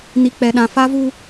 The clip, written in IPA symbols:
ni˦ k͡pɛ˦ɗã˦ fa˦vu˦

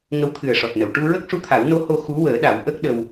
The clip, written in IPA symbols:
ŋə˧˥wt̪ʰɨ˨˩ə̯ʂɔ˨˩t̚nə˨˩˨w ʈu˧ɹə˦˥k̚ʂu˧˥t̪ʰa˨˩˦w no˧˥ho˧ xu˧˥wəː˨˩˦ɗa˨˩˦w ʔə˦˥k̚ ɗə˧w

